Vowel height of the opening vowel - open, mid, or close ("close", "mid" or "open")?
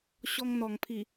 mid